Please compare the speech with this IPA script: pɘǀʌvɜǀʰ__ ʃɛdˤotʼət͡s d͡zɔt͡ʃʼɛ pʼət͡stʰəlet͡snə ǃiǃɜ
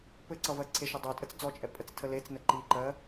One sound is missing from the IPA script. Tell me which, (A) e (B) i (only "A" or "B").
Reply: A